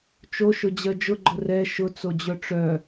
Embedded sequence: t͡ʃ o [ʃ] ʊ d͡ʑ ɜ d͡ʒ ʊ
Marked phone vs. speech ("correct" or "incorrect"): correct